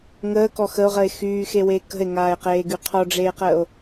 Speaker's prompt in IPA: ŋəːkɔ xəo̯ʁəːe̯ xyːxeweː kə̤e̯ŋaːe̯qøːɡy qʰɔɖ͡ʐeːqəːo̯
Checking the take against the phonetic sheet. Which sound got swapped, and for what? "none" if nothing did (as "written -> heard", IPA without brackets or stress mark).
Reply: øː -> eː